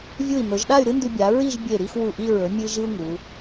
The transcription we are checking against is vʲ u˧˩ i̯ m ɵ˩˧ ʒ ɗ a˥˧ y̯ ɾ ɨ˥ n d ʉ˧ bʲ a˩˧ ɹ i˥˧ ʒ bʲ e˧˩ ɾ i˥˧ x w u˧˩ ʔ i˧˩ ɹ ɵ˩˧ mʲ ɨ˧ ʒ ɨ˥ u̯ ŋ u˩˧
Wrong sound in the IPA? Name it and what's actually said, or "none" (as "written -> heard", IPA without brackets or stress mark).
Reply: none